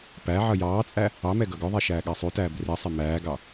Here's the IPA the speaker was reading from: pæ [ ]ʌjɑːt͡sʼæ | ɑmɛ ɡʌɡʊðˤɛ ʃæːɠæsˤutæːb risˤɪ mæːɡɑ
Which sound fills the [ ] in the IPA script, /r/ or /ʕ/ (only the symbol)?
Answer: ʕ